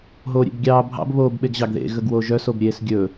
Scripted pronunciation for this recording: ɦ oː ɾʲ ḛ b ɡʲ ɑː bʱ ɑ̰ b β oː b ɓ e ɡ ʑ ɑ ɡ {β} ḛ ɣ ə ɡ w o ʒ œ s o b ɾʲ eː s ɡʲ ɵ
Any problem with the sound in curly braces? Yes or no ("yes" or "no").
yes